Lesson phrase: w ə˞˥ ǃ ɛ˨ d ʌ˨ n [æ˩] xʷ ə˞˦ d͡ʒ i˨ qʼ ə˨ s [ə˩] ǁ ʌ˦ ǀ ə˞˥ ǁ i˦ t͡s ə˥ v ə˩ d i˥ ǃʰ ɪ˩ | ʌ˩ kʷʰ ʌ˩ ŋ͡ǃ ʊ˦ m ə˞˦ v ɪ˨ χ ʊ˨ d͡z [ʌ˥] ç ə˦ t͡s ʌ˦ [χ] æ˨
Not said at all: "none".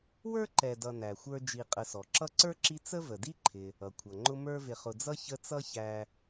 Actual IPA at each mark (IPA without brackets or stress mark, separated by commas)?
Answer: æ˩, ɔ˩, ʌ˥, ç